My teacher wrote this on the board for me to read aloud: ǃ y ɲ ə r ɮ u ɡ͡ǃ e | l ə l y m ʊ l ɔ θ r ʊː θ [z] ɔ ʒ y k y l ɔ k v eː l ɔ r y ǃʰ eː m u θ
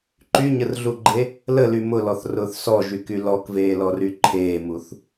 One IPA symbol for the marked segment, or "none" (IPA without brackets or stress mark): s